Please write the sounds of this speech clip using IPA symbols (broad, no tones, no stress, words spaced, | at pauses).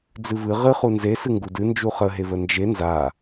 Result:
d͡zɨvɨ ʁɨχu nzesɨ ŋɡudɨ nd͡ʒuχəɦe vənd͡ʒe nza